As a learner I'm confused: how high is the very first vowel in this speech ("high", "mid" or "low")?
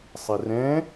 high